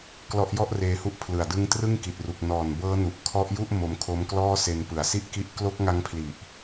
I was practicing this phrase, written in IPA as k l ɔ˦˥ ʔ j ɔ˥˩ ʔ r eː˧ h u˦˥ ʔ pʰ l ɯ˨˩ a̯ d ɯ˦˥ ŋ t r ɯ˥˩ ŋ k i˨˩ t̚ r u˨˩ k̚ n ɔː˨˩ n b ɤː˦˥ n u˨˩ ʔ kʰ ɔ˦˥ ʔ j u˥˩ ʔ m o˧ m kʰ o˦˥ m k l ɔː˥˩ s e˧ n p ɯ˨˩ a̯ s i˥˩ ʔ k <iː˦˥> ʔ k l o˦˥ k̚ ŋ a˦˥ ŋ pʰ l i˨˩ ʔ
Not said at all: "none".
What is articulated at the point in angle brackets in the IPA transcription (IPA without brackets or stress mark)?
i˦˥